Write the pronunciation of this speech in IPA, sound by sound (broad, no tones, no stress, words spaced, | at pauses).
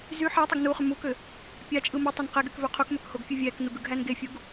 zy ħætˤɯɡ nuχy mukø | pʲɑt͡ʃʼɯ mɯtˤøn qeɡykvø qʰukmøkhoɡfʲu vʲæknuɡɯɡɦæn ɡefʲuɡ